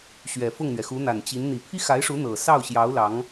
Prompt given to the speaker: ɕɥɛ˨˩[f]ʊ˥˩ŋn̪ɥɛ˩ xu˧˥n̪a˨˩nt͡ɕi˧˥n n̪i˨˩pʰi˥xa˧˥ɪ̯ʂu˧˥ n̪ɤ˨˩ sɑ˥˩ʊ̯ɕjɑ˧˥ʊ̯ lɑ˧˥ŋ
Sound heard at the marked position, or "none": f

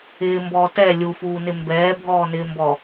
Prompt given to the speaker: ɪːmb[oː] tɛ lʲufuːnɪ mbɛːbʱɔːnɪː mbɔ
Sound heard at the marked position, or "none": ɔː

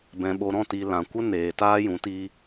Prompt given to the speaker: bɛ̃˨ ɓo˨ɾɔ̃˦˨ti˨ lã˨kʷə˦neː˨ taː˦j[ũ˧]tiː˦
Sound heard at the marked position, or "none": ũ˨˦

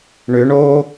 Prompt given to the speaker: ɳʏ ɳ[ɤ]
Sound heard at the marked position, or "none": o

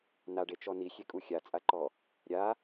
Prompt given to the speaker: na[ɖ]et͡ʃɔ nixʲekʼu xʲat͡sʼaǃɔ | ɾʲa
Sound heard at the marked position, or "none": ɖ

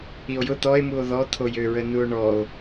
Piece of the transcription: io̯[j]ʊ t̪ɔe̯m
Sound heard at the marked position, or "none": j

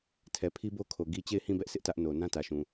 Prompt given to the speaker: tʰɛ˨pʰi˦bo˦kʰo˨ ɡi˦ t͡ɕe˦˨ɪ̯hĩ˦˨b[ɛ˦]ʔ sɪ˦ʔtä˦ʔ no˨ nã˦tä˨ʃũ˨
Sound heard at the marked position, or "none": ɛ˦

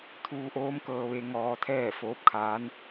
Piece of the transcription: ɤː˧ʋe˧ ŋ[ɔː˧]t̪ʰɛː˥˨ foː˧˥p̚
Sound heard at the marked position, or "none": ɔː˧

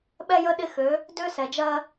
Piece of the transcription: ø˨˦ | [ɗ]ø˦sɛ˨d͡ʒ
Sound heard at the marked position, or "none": d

